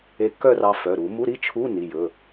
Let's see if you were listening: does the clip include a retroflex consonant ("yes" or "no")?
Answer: no